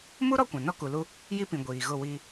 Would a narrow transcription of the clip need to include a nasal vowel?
yes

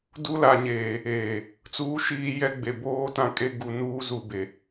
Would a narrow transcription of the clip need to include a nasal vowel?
yes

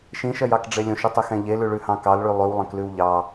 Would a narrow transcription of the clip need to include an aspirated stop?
no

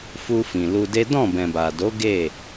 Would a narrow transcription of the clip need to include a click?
no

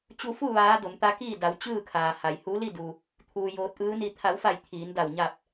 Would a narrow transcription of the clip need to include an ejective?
no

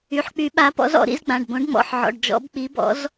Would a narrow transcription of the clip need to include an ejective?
no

